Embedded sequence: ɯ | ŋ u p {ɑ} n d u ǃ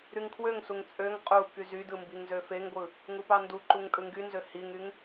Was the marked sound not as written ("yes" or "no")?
no